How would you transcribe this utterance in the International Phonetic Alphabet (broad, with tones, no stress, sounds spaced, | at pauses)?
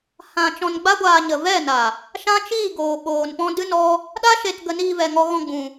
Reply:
h ã˧ t͡ʃ ɔ̃˧ n ɡ͡b a˦ ɡʷ aː˧ ɲ ə˨ v ɛ˦˨ n a˨ | ʃ ã˦ t͡ʃ iː˦˨ ɡ oː˨ ɓ oː˨ n p ɔ̃˦ d ɨ˦ n ɔ˦ | ɗ a˦ ʃ e˧ t ɡ ə˧ n iː˧ v ɛ˨ ŋ ɔ˧ ɣ ɔ̃˧ ɡ͡b ũ˧